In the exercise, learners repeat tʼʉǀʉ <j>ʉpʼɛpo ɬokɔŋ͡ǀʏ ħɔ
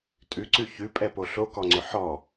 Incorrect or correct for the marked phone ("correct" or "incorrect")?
incorrect